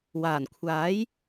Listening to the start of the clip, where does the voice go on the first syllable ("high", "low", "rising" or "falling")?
low